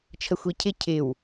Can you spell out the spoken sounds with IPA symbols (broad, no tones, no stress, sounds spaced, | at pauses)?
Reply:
t͡ʃʰ ə xʷ i cʰ ɪ cʰ ɪ w